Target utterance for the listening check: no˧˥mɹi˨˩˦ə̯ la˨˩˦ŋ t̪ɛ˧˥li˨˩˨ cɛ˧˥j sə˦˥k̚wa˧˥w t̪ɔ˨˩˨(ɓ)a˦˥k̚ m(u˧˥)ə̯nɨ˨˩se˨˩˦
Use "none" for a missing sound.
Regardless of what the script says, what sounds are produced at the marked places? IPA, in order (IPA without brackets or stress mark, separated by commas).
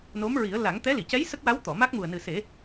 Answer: m, u˨˩